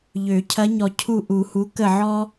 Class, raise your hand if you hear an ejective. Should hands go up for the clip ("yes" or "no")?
no